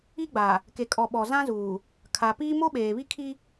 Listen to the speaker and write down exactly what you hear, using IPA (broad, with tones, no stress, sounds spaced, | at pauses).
i˦ ɡ͡b a˨ | k e˨ kʼ ɔ˨ ɓ ɔ˨ z ã˦ z uː˨ | kʰ a˨ p iː˦ m o˦ ɓ eː˨ β i˦ kʰ i˦